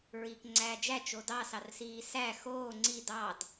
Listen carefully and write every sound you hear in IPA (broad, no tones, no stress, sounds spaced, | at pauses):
ɹ iː k ŋ͡ǀ æː d͡ʒ æ t͡ʃ o d ɑ s ɑ r s iː s æ x oː ŋ͡ǀ i d ɑ d